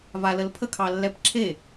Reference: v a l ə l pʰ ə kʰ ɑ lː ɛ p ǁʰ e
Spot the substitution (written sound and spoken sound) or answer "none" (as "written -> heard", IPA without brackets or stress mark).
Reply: none